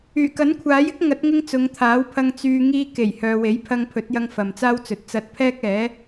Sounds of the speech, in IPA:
yː˨˩ k ɐ˨˥ n kʷʰ aː˨˥ j ɪ˥ k̚ ŋ ɐ˨˥ t̚ ŋ ɪ˧ ŋ t͡s ʊ˨˧ ŋ t̪ʰ aː˨˥ w pʰ ɐ˧ ŋ t͡s yː˨ ŋ iː˧ k e˨˩ j h œː˨ w e˨˥ j pʰ ɐ˧ ŋ pʰ ɵ˨˥ t̚ j ɐ˧ ŋ f ɐ˨ m t͡s aː˥ w t͡s ɵ˨ t̚ t͡s ɐ˧ t̚ pʰ ɛː˥ k̚ ɛː˨˥

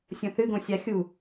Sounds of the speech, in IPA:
sʲ õ θ ɨ ɡ õ sʲ a xʲ u

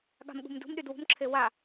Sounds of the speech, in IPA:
ɠ a̤ m ɠ ṳ m d ṳ m ɗ y d w ṳ m ǁʰ e w a

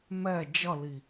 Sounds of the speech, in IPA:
m ɛ d͡ʒ ʌ l i

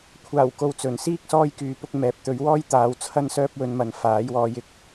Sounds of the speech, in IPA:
kʷʰ aː˨˩ w k o˨ w t͡s ɵ˨˩ n s iː˥ k̚ s ɔː˥ j k yː˨˥ p ʊ˨˥ k̚ m ɛː˨ p̚ t̪ ɵ˨˥ ɥ w ɔː˥ j t̪ aː˨˧ w t͡sʰ ɐ˥ n s œː˥ p̚ w ɵ˧ n m ɐ˨ n f aː˨˥ j w ɔː˧ j ɪ˨ k̚

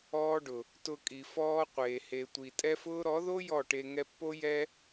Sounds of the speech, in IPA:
ɔː˦ ɖ ʊ˨ | t ʊ˧ kʼ i˨ f ɔː˦ qʷ eː˨ h e˨ tʷ i˨ tʼ ɛ˦ f ʊː˦ ɾ ɔ˨˦ ð o˦ j ɔ˦˨ ʈ e˧ ŋ ɛ˧ pː o˦ j ɛ˦

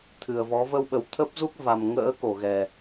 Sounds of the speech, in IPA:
t̪ʰ ɨ˨˩ ə̯ v ɔ˨˦ v ə˧ w ɓ ə˨˩ w t̪ʰ ə˦˥ p̚ z u˦˥ k̚ v a˨˩ m ŋ ə̰ː˧˥ k o˧˩ ɣ ɛ˨˩

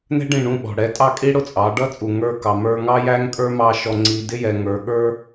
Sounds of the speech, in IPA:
n ɛ̤˦ ɖ ĩ˦˨ ɳ ũ˦˨ ɓ ɔ̤˨ ɽ ɛ˨˦ tʼ ɑ˦˨ kʼ i˦ ɽ ʊ˦ t͡sʼ ɑ˨˦ ɖ ʌ˦ t͡sʼ u˨ ŋ ə˞˦˨ k ɑ˨ m ə˞˧ ŋ ɑ˦ j æ˦ ŋ kʼ ə˞˦ m ɑ˦˨ ʃ ɔ˧ ŋ͡ǀ i˧ d ɪ˦ j ɛ˨ ŋ ə˞˨ ɠ ə˞˦

